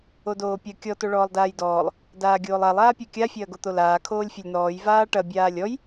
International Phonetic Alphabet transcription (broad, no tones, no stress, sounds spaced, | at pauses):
o d oː pʲ ɐ kʲ ɔ t o ɭ ɔː lˠ d aː j d ɔː lˠ | d aː ɡʲ oː lˠ a lˠ aː pʲ a kʲ a fʲ ɐː ɡ o t̪ o l aː kʰ oː lʲ fʲ ɐ lʲ n̪ ɔː j v aː ʈ ɐ bʲ aː lʲ ɔ j